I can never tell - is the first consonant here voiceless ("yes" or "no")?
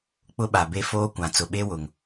yes